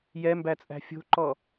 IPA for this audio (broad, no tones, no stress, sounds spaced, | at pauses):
j ɛ m b æ t͡sʼ æ̤ fʲ o̤ ǃ ɔ